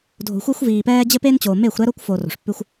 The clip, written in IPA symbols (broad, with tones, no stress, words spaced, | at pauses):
dʱo̤˨xʷɛ˦xʷviː˨pɛː˦ d͡ʑɘ˦pe˦nt͡ɕoː˨ me˦˨xʷɾɛ˦ɾo˦kʷ foː˨ro̤˨ʂpːʉ˦xʷ